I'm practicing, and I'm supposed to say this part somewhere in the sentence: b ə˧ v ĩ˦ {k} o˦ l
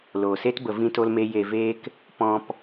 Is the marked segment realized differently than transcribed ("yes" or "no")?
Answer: yes